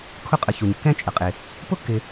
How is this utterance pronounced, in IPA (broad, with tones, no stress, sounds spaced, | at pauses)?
kʰ ʊ˦ qʼ ə˨ ç u˩ ɲ kː ɛ̃˥ t͡ʃʼ ə˩ qʼ ɪ˩ | p ʊ˥ kː ɪ˨